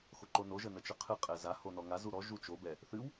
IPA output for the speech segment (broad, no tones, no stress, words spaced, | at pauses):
xoǃono ʒənət͡ʃəqʰɨ qʼɛza honɔŋa zuɾɔ ʒut͡ʃo bɛ | θɨw